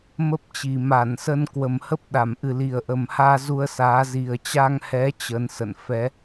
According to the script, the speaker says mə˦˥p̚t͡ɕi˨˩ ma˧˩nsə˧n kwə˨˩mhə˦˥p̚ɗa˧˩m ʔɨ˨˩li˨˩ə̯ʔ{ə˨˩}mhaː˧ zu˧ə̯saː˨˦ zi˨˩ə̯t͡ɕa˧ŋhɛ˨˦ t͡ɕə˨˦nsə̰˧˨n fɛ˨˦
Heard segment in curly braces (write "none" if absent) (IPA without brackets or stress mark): ə˨˩